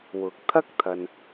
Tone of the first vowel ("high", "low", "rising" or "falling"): rising